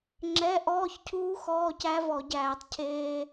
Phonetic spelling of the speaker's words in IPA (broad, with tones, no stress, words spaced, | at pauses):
ŋ͡ǁɛ˧˥˧ʔɔː˧˥˧çcʰuː˦˥ xɔː˧˥˧cæ˦˥vɔ˧˩˧ ɟæː˧˩˧tˤ cʰeː˧